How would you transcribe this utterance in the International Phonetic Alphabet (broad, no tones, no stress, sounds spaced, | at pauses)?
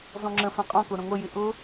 z ɔ̃ ŋ͡ǁ ə̃ f ɛ̃ qʼ ɔ̃ k ʊ ɾ ə̃ ŋʷ ə j ɪ ʔ ʊ